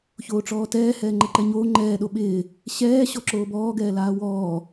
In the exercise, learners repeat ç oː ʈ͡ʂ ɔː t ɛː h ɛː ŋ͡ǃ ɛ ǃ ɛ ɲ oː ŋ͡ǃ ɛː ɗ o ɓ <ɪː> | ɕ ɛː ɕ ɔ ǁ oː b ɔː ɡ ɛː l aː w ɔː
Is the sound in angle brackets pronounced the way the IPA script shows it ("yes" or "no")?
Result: yes